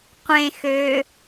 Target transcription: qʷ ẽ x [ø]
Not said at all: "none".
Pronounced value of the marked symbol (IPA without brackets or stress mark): ø